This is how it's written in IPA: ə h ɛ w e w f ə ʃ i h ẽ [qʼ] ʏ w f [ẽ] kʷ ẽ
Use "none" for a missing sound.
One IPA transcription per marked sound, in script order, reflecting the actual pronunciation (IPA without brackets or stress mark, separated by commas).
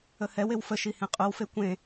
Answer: qʼ, e